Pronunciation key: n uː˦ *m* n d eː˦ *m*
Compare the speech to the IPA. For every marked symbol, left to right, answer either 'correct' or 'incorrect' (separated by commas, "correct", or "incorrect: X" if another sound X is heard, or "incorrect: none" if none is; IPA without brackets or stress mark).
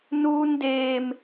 incorrect: none, correct